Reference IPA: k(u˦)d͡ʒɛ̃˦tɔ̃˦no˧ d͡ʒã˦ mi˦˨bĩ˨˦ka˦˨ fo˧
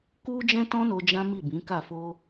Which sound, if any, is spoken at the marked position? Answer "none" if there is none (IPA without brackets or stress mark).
u˦